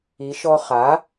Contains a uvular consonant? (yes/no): yes